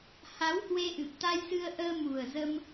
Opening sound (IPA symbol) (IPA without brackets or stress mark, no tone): h